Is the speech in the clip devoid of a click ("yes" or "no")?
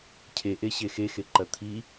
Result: no